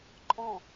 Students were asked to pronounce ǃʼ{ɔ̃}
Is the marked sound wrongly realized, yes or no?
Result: no